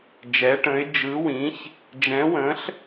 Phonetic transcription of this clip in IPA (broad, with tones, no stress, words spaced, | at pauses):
d͡ʒɛ˨˦ʈə̃˨˦ɪ̯ d͡ʒɯ˨˦wĩ˨˦ç | d͡ʒɛ̃˨˦wə̃˨˦ɬ